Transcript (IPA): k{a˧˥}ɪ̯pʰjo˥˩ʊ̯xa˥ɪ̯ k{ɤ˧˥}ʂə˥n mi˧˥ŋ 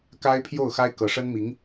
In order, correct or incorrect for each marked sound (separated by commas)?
incorrect, correct